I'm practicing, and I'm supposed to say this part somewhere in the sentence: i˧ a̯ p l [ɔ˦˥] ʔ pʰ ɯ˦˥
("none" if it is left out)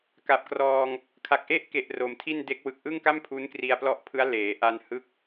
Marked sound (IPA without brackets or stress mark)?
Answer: ɔ˦˥